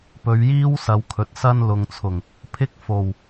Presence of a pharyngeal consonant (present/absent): absent